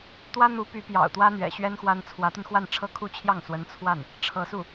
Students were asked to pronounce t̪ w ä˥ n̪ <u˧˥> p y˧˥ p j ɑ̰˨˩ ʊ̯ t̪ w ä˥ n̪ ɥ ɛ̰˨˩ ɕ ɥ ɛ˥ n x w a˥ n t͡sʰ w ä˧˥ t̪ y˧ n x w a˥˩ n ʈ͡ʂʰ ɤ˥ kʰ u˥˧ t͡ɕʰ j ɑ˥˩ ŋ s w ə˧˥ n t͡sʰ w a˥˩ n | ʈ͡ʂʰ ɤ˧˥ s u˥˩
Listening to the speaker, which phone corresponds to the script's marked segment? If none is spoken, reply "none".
u˧˥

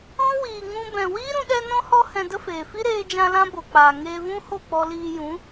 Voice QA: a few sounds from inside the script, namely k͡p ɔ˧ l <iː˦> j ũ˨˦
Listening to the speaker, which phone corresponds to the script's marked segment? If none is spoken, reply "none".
iː˧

